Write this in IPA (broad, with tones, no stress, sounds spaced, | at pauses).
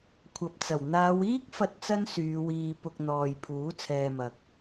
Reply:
kʷʰ ɐ˨ p̚ t͡s ɐ˨˩ w n̪ aː˨˧ w iː˥ k̚ f ɐ˧ t̚ t͡s ɐ˥ n s yː˨˧ w iː˧ p ʊ˧ k̚ n̪ ɔː˨ j pʰ uː˨˥ t͡sʰ ɛː˧ m ɐ˨ k̚